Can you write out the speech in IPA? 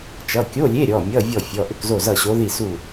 t͡ʃ ʌ˩˧˩ kʲ o˧˥˧ lʲ e˧˥˧ ɾʲ ɔ˩˧˩ mʲ ʌ˧˥˧ vʲ ɔ˥˨ fʲ ɔ˩˧˩ ʔ ʏ˥˨ k z o˥˨ z ʌ˥˨ ɕ o˧˥ ð i˥˨ s u˥˨

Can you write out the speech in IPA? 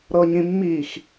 ɾ ɤ ɲ ĩ mː i x

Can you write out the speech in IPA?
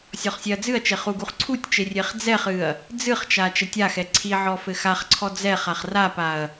sʲ ɔ χ sʲ ɛ ɐ̯ d͡z ɨ ɐ̯ t͡ʃ e χ u ɡ u χ ǀʰ u tʲ t͡ʃ e rʲ e χ d͡z ɛ χ ɨ ɐ̯ | d͡z ɨ χ t͡ʃ a t͡ʃ ɛ tʲ a x ɛ ǀʰ i ʕ ɔ f ɘ x a χ ǀʰ ɔ d͡z ɛ χ a χ r a p a ɐ̯

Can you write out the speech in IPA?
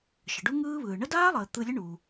ʃ ə˩ ɖ u˥ ŋ ɯː˥ β ɯː˩ ɳ ə˥ d aː˥ lˠ əː˩ t̪ ɯ˧ lʲ ə˥ ɳ uː˩

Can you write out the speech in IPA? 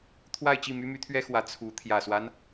t̪ʰ w a˥˧ ɪ̯ t͡ɕ i˥˩ m y˥ m y˧˥ t̪ʰ ɥ ɛ˥ x w ä˧˥ t͡sʰ u˧˥ t̪ʰ j ä˨˩ s w a˦ n

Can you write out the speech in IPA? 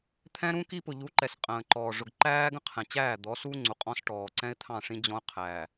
t̪ʰ ɛ̃˦ ɾ ũ˦ k i˦ p ʊ˨ ʎ u˨˦ ǃ ɛ˨ s qʼ ə̃ː˨ ǃ ɔː˨ ʐ ʊ˨ ɡ ǃ æː˦ ɡ ə̃˦ qʰ ɛ̃˨ t͡ɕ æː˦˨ d̪ ɔ˨˦ s u˦ ŋ͡ǀ u˨ qʼ ɔ̃˦ s ʈ ɔː˨ ǀ ɛ̃˦ ɪ̯ t̪ʰ ɑ̃˦˨ ʂ ĩ˦ d͡ʑ ɔ̃˦ ʊ̯ qʰ æː˨

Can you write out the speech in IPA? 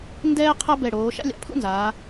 n d ɛː˥ qʰ ɐ˥ b ɛ˧˩ ɽ oː˩˧ ʃ a̰˥ lʲ a̰˩˧ pʰ ṵ˥ n z aː˩˧

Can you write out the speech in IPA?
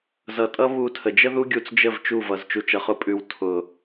z ʌ˨˦ tʼ ʌ˦ β u˦˨ tʰ ə˨ d͡ʒ ə˦ ð u˦ ɡʲ u˧ t͡s d͡ʒ ə˦˨ v t͡ʃ u˦˨ v ʌ˨ z t͡ʃ u˨ t͡ʃ ʌ˨ χ ʊ˨˦ pʼ ʉ˨ w tʰ ʊ˨

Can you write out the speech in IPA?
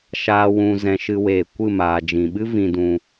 ʃ aː˨ w ũ˨ z ɛ̃˨ ʃ ɨ˧ w eː˨ kʷ ɨ˦˨ m aː˨ d͡ʒ ĩ˨ ɓ ɨ˦ v ĩ˧ d ũ˧

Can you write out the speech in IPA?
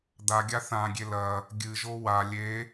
d̪ a ɡʲ a θ ã ɡʲ e l ɐ | ɡʲ ɨ ʒ o w a lʲ e

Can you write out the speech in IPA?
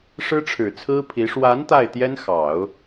ʂ ɻ̩˥ ʈ͡ʂʰ ɻ̩˨˩ t͡sʰ ɹ̩˥ pʰ i˧˥ ʂ w a˧˥ n t̪ a˥˩ ɪ̯ t̪ j ɛ˥ n x ɑ˨˩˦ ʊ̯

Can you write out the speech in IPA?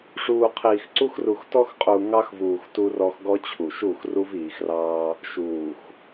ʂ uː˨ qʰ iː˨ x ǀ u˦ x r u˨ x t ɔ˦ x qʼ u˨ ŋ ɑ˦ x v uː˨ x t u˦ r ɔ˦ x ɡ ɔ˦ t͡ɕʰ u˨ ʃ u˦˨ x r u˦ v iː˨ x r ɑː˦ | ʃ uː˨ x

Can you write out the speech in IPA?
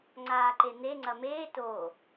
ŋ͡ǀ aː ǃ e n̪ e ŋ͡ǀ ɐ m eː t o

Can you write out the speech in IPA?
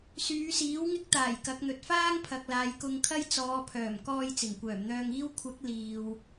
s yː˨˧ s iː˨˥ w ŋ ɪ˥ k̚ t̪ aː˨˩ j k ɐ˨˥ k̚ n̪ ɵ˨ t̚ f aː˥ ŋ pʰ ɐ˨ k̚ l aː˨ j k ʊ˧ ŋ kʰ ɐ˥ j t͡s ɔː˨˧ pʰ œː˨˩ m k ɔː˧ j t͡s ɪ˨˩ ŋ kʷ œː˨˩ m n̪ œː˧ ŋ iː˥ w kʷʰ ɐ˨˥ k̚ l iː˨ w

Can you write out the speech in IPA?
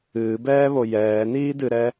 ɨː b ɛː β o j ɛː n iː d ɨ ɾ ɛ

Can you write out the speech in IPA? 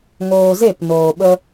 ŋ oː˧ z e˦˨ p n oː˨ ɓ ə˧

